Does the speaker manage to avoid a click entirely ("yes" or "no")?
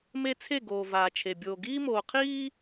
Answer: yes